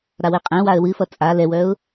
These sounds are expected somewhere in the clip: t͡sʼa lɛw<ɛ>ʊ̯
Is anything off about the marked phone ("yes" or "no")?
yes